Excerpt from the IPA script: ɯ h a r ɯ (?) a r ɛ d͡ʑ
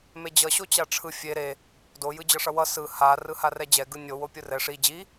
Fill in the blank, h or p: h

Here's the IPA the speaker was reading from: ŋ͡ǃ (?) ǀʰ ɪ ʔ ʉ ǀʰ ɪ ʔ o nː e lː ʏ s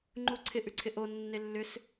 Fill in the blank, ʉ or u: u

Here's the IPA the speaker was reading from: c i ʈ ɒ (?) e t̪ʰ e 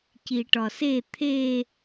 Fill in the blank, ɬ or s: s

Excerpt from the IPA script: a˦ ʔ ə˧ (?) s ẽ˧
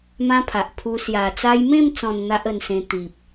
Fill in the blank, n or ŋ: n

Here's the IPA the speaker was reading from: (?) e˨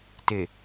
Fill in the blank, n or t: t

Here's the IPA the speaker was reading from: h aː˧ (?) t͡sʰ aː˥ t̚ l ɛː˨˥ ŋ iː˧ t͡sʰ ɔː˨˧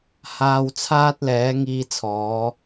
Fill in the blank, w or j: w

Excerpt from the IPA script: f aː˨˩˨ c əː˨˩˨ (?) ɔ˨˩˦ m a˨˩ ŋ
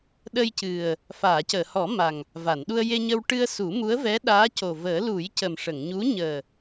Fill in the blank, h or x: h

